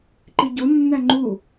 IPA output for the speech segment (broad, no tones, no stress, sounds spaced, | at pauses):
ǃ i ɟ o nː æ ŋ͡ǃ u